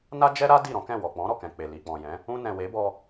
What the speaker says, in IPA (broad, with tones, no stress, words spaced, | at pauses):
na˦d͡ʒɛ˦ɾa˦ di˦˨ɾɔ̃˨˦kɛ̃˦˨wɔ˨ k͡pɔ̃˨˦ɾɔ˦˨kɛ̃˨ k͡pe˨ li˨k͡pɔ̃˨jɛ̃˨˦ | ũ˧nɛ̃˨we˨˦bɔ˧